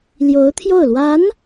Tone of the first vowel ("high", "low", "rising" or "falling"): rising